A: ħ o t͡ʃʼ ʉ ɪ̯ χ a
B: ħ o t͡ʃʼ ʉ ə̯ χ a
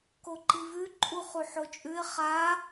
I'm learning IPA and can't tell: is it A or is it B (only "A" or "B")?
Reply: A